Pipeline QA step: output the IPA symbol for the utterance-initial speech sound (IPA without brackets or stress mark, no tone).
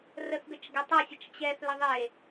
r